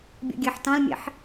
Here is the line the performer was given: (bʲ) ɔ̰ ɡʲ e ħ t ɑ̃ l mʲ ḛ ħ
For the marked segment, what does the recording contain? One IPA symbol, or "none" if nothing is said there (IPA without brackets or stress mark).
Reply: bʲ